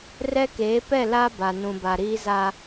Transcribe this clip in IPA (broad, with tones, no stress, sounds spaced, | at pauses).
r ɛ˦ k eː˨˦ p ɛ˦˨ l a˦ b a˨ n ũ˨ b a˨ ɾ iː˦ z a˦